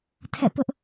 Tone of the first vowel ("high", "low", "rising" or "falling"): falling